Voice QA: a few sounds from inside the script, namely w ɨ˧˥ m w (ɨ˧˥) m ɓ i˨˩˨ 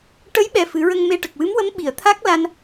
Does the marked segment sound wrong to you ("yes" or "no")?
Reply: yes